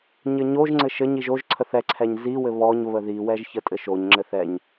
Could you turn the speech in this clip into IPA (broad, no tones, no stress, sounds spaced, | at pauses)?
ɲ ɘ ɲ o ʒ ŋ͡ǀ ɘ ʃ ɘ ɲ i ʒ o ʒ ǀʰ ə θ ɛ ǀʰ ɛ ɲ z i w ɘ β ɔ ɲ β ə ð i w ɛ ʒ ç ə tʼ ɘ ʃ o ɲ ŋ͡ǁ ɘ θ ɛ ɲ